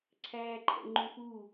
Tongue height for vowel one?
low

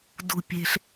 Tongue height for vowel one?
high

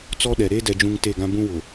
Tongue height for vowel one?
mid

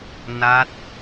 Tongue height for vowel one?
low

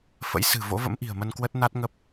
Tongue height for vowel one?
mid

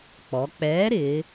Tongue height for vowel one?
mid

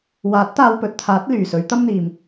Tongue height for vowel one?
low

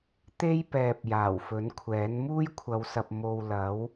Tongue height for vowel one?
mid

